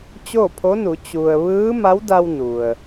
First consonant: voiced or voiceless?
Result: voiceless